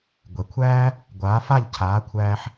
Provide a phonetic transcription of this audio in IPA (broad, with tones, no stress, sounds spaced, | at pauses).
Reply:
ɡʷ ɛ˩ kʷʰ æː˥ | ɡʷ aː˩˥ f a˥˩ ʎ cʰ aː˩˥ kʷʰ æː˧ ħ